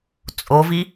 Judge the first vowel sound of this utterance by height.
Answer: mid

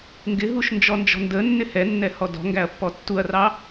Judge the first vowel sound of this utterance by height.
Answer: high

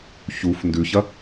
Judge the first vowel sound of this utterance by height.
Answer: high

